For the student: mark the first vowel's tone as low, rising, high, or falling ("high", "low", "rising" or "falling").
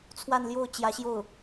falling